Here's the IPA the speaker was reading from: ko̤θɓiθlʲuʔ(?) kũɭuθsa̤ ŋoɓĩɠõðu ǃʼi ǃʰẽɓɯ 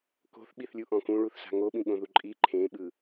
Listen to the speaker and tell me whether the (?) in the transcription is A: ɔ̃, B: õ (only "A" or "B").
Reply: A